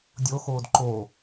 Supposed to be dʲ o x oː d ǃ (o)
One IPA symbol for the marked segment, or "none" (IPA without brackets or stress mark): o